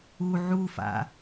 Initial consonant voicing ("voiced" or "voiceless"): voiced